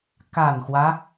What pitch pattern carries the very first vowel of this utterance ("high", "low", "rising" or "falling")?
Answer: low